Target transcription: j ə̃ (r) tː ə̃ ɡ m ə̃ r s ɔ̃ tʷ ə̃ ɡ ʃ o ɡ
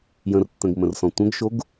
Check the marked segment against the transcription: correct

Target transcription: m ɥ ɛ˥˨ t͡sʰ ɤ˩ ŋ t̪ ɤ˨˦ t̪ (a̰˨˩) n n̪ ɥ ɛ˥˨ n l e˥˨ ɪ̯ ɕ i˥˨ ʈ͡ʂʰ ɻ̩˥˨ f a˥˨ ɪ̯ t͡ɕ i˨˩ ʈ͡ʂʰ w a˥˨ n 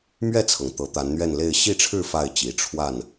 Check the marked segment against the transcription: incorrect: a˨˦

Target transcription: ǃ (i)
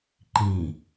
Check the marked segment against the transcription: incorrect: ĩ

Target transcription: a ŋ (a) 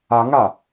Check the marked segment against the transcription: correct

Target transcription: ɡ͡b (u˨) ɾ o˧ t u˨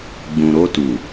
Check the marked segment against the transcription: incorrect: ũ˨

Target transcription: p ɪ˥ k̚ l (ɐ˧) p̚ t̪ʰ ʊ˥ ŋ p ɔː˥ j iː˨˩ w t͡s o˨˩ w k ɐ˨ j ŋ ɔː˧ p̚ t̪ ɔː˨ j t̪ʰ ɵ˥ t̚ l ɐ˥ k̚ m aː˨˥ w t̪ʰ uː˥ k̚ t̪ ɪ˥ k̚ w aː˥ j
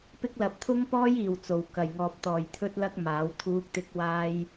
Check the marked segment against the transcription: incorrect: ɐ˨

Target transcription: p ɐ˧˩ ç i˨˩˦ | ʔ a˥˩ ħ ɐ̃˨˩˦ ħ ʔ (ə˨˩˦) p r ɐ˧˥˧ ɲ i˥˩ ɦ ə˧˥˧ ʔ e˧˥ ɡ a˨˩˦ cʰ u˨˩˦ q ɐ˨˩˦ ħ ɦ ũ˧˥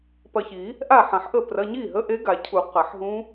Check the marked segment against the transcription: incorrect: ə˥˩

